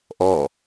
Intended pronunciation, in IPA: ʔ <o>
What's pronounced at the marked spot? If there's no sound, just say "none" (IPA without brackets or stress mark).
ɔ